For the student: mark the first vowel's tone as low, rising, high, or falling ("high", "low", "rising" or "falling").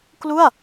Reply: falling